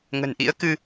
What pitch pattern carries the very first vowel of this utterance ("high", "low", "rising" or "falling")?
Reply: low